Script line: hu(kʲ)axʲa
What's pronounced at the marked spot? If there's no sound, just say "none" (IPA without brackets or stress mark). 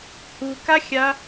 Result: k